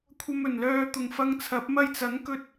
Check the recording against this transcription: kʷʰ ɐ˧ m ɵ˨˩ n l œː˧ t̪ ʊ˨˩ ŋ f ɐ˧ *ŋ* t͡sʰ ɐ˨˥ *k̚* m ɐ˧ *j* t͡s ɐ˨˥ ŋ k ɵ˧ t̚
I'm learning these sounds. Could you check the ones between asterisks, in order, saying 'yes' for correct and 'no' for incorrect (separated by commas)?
yes, no, yes